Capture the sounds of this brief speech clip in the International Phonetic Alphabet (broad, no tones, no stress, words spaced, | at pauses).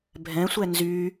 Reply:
bʱɛ̃sʷɛ nzy